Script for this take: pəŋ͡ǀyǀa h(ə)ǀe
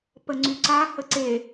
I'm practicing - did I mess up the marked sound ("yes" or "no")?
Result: no